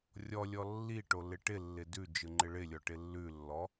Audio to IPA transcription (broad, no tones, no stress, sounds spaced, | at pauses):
rʲ ɔ lʲ ɔ lː i ʈ o l ɪ ʈ ɪ lː ɪ d ʉ d͡ʒ ɯ ŋ͡ǃ ɪ ɭ ɪ lʲ ɔ ʈ ɪ lː ʉ lː ɔ